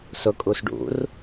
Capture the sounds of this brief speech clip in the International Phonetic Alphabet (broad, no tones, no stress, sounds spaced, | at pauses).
s ʊ kʼ u s ɖ ṵ r